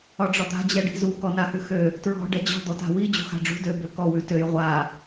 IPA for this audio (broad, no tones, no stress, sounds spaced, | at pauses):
ɒ ɖ͡ʐ ɒ d̪ a̤ d͡ʑ ɛ ɖ i̤ z u k ɔ n a h ʉ x ø | t ɹ ɔ̤ ɖ ɛ d͡ʑ ɔ̤ d̪ ɔ t a̤ w i d͡ʑ ṳ x a̤ ɖ͡ʐ ṳ d ø b ø k ɔ w ʉ t ø j ʁʷ a